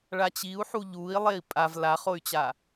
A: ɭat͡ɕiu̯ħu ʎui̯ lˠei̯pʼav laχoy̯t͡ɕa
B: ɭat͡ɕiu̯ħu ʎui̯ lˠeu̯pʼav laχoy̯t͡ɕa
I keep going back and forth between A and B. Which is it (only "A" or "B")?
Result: A